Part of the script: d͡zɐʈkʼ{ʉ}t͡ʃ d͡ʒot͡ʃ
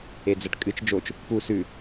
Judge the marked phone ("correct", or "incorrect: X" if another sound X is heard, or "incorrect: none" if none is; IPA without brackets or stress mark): incorrect: ɨ